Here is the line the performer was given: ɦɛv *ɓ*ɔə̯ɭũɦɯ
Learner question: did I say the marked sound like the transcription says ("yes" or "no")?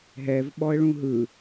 yes